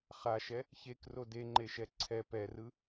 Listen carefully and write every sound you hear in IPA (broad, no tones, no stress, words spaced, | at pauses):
χaʃɛ | çekro deŋ͡ǃeʃɛ ǀʰɛ pɛrɯ